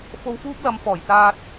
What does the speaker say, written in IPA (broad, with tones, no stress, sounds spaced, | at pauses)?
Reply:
f o˧ w f uː˥ p̚ l ɐ˨˧ m f ɔː˨˩ j t͡s aː˧ t̚